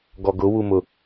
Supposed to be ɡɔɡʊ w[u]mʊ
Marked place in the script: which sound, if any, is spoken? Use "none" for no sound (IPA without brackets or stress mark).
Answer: u